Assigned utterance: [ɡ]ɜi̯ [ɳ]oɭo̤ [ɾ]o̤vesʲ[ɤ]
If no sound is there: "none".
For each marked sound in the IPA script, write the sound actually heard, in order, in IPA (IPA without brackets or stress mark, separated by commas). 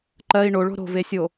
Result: ǃ, ɳ, ɾ, o